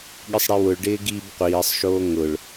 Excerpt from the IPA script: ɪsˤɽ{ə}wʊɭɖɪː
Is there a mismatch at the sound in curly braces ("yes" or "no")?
yes